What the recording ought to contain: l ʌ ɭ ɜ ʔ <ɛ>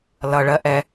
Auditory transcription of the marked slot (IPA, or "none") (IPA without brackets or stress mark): ɛ